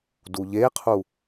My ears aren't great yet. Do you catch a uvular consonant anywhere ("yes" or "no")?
yes